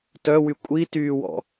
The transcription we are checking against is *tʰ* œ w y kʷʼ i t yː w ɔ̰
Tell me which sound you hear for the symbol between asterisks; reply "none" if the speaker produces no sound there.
t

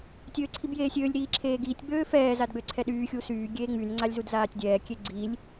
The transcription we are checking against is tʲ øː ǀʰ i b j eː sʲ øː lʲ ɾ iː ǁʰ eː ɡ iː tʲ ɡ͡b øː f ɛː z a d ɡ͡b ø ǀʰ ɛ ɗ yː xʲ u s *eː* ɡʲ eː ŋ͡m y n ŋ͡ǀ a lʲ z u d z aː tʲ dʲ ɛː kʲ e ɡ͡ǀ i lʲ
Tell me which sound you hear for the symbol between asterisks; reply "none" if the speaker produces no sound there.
yː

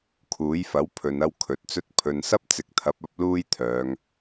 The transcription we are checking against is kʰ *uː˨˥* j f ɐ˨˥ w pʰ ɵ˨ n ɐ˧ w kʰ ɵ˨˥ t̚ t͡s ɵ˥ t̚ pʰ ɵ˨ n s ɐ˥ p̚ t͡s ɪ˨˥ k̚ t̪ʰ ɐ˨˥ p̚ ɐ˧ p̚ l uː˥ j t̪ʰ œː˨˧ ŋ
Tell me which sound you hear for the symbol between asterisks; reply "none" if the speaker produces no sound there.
uː˨˥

